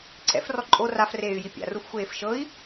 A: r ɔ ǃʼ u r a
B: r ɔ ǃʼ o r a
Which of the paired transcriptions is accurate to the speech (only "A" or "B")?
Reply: B